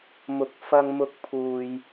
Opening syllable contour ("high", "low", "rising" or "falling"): rising